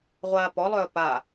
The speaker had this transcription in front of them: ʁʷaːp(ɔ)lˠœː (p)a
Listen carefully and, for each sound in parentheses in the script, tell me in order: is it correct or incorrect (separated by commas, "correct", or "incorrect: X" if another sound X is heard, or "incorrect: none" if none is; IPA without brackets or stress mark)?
correct, correct